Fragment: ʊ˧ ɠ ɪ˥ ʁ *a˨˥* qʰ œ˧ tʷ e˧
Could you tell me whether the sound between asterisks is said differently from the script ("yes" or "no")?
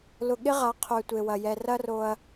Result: no